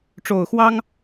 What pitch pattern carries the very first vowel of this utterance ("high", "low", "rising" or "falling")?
low